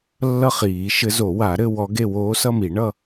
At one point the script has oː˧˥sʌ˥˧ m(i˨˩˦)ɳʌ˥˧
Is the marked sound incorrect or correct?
correct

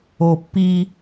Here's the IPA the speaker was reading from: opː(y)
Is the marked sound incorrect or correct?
incorrect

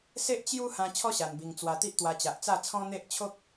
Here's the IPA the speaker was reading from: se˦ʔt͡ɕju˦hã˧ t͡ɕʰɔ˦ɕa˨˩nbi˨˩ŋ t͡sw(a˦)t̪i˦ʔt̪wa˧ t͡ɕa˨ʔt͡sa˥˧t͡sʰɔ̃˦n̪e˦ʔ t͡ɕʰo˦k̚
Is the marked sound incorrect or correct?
incorrect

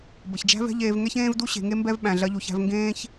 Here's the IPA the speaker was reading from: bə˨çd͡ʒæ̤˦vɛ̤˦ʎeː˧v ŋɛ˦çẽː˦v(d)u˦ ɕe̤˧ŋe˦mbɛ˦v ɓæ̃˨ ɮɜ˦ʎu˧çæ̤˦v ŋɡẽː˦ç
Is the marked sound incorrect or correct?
correct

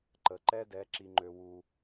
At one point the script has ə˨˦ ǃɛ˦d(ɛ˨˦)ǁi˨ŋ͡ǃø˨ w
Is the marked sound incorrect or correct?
correct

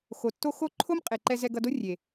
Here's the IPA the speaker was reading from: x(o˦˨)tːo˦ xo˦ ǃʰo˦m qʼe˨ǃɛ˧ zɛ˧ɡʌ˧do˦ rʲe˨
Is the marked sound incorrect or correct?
incorrect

